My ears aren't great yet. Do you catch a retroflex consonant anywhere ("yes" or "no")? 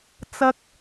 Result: no